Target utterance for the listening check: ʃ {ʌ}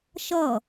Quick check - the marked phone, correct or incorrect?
correct